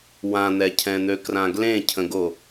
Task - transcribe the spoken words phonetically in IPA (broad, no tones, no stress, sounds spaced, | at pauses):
w ã n̪ ɛ cʰ ɛ̃ n̪ ø k r ã ɡ l ẽ cʰ ə̃ ɡ o